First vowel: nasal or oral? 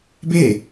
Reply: oral